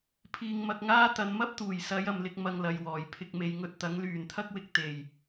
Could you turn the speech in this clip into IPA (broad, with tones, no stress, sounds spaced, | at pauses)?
pʰ iː˧ ŋ m ɐ˧ k̚ ŋ aː˥ t̪ ɐ˨˧ n m ɐ˥ p̚ t̪ uː˨˩ j s ɐ˨˧ j ɐ˨ m l ɪ˧ k̚ m ɐ˧ ŋ l ɐ˨ j w ɔː˨˩ j pʰ ɪ˧ k̚ m e˨˧ j ŋ ɵ˧ t̚ t̪ ɐ˨˥ ŋ l yː˨˩ n t̪ʰ ɐ˥ k̚ w ɪ˧ k̚ t̪ e˨˩ j